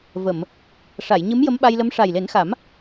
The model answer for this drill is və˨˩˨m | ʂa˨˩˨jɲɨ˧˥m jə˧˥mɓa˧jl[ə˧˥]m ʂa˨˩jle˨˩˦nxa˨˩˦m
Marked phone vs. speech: correct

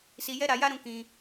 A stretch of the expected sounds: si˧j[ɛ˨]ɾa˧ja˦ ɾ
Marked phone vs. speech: incorrect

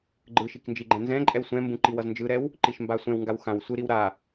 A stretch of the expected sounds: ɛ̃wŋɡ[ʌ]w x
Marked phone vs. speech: incorrect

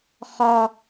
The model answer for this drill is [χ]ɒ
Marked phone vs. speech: correct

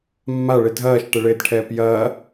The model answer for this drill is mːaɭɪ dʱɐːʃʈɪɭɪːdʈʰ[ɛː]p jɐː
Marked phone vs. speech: correct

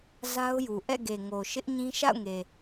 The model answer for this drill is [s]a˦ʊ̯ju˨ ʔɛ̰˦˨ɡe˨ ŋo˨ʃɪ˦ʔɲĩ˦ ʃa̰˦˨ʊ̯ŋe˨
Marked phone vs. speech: incorrect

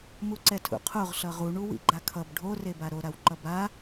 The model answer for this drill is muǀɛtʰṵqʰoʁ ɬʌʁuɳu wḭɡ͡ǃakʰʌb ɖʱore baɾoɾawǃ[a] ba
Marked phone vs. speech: incorrect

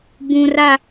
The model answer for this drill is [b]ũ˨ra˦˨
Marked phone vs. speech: correct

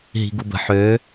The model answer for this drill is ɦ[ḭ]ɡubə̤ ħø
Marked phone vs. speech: incorrect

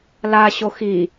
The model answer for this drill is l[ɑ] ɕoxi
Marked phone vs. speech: incorrect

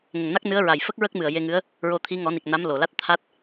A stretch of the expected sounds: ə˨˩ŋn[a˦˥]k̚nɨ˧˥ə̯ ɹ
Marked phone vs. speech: correct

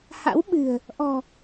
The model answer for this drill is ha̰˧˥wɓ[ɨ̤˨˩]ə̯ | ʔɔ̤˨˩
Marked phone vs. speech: correct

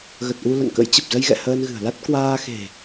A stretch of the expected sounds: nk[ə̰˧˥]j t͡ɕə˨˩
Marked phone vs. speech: correct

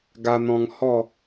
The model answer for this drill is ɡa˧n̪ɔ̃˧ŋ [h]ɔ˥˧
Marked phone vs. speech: correct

